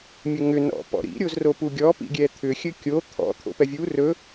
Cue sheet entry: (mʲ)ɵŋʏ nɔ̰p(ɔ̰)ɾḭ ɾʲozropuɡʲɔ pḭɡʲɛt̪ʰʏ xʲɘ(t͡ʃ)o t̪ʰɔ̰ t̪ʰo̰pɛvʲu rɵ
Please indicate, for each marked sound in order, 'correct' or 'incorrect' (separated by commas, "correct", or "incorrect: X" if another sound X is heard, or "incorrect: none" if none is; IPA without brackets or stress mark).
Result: correct, correct, incorrect: kʲ